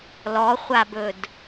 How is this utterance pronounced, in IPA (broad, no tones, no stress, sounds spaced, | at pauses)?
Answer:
l ɔ χʷ a b ɵ d